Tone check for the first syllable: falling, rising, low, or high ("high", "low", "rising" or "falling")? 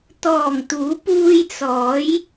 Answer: low